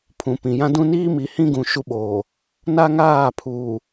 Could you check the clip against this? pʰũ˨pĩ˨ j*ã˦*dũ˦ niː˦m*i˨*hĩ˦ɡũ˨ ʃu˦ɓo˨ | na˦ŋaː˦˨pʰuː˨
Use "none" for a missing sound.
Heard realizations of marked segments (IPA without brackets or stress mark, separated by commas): ã˦, i˨